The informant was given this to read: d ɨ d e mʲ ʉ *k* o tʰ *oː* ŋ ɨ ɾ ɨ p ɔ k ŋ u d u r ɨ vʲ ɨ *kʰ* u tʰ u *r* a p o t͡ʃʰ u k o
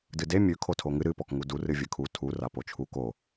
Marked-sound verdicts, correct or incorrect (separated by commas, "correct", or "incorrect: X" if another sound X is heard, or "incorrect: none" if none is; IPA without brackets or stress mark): incorrect: kʰ, incorrect: o, correct, correct